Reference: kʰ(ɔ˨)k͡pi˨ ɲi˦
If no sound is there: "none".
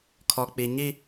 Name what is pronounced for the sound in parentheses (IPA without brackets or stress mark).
ɔ˨